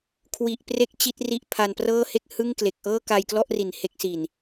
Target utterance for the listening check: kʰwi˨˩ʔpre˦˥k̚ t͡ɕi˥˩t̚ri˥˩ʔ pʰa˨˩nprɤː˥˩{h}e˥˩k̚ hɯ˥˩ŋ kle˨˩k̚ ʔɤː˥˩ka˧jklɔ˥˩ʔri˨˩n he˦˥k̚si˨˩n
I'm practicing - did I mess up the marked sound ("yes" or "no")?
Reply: no